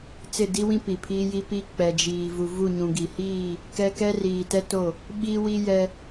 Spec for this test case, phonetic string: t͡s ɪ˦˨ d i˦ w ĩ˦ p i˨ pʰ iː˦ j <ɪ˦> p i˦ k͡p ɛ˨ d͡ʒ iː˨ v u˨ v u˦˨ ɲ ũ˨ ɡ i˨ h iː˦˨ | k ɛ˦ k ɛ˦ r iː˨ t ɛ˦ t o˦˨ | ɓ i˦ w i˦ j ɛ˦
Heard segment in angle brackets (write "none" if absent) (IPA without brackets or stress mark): i˦